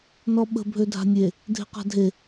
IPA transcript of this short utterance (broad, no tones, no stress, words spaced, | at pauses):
nɔɓə̤ bʱødʱa̤nʲe | dʱe̤qa̤dʱe